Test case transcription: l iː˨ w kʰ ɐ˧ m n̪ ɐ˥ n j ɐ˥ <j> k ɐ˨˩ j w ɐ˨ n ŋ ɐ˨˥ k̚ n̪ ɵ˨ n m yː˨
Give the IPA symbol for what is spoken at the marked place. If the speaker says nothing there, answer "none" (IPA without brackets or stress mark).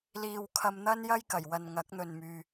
j